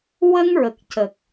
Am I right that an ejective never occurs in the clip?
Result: yes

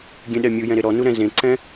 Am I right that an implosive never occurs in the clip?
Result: no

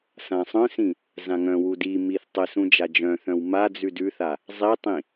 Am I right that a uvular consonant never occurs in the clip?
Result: yes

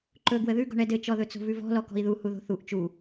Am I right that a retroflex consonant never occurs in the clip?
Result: no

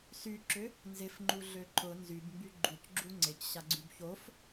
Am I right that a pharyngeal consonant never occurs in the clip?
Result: yes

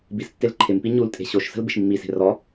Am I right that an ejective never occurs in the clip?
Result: no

